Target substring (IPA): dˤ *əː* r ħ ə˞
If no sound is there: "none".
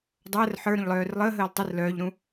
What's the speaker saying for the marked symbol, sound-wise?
əː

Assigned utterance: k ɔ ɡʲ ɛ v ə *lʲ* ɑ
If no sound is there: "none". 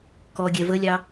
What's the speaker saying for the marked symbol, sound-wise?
lʲ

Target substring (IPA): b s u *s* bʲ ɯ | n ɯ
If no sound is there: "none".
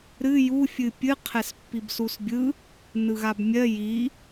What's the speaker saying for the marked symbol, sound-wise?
s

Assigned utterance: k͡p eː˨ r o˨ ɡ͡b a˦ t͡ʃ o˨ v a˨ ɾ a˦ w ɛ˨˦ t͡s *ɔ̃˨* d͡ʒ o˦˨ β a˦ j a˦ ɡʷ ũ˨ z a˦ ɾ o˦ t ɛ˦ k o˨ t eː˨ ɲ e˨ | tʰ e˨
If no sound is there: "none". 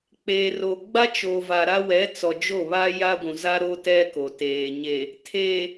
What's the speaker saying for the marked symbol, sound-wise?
ɔ˨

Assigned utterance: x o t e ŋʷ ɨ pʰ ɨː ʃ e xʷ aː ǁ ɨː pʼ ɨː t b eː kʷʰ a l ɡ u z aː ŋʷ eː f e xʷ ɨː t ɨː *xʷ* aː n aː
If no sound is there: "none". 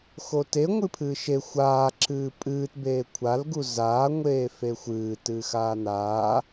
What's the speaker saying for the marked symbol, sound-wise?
x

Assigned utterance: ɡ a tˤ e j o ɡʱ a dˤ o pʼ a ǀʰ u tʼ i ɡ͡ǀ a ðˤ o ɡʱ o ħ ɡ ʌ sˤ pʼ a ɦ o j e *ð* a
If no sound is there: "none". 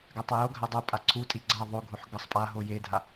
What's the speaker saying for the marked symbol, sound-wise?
dʱ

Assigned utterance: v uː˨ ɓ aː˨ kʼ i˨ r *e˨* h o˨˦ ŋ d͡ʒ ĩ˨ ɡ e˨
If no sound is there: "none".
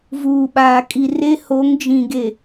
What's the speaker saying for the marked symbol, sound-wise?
e˦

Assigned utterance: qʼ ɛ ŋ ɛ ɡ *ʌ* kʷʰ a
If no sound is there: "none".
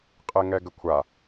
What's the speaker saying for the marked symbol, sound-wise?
ə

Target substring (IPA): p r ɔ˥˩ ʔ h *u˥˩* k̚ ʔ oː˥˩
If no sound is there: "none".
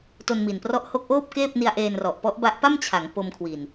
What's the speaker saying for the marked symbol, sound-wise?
o˥˩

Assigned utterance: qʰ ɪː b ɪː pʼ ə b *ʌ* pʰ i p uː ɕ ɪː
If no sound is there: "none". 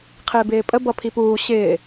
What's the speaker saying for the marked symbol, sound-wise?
ʌ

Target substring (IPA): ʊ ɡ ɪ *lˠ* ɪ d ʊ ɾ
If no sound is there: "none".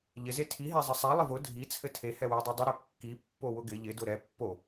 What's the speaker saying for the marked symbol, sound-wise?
ʎ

